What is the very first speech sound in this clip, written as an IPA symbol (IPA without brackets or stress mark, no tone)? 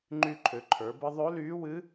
ŋ͡ǃ